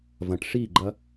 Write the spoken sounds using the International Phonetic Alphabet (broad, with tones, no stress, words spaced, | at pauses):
vɐ̃˨ʈ ʂi˦˨ɡ͡ǃɐ˦